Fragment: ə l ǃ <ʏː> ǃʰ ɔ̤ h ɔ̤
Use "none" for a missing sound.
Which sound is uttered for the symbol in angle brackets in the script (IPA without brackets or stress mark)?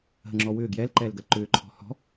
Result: ʏː